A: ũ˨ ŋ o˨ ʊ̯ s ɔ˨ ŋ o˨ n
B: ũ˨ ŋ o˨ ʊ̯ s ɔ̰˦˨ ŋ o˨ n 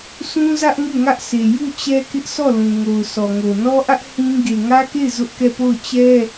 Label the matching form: A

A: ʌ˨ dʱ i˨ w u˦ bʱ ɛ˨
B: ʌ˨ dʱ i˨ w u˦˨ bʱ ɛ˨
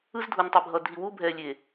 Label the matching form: A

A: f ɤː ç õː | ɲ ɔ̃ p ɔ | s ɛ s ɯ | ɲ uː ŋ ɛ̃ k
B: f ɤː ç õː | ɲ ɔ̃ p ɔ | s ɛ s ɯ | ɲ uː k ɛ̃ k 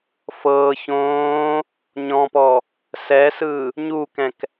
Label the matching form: B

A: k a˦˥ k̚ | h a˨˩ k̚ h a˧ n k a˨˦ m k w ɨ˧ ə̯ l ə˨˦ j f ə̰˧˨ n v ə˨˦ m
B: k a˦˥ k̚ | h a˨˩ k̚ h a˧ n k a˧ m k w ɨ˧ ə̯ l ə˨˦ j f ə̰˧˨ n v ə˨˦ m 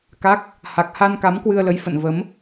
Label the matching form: A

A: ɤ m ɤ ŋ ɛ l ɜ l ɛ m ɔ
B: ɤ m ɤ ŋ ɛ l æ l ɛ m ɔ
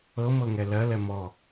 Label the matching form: A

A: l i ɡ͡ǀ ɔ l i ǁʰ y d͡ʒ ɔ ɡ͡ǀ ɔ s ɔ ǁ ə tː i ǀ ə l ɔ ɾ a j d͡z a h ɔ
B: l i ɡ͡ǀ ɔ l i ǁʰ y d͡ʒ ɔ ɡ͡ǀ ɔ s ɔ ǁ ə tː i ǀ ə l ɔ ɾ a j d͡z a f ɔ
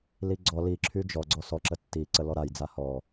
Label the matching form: A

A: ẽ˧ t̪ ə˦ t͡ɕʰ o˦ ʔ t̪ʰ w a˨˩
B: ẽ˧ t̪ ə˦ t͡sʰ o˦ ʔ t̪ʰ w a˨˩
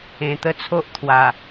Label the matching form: B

